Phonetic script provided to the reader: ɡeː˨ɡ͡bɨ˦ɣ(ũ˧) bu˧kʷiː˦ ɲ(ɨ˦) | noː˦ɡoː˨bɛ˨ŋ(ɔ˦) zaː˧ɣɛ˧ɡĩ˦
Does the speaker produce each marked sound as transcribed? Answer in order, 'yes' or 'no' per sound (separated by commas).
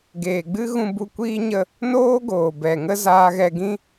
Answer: yes, no, no